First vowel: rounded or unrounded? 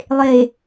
unrounded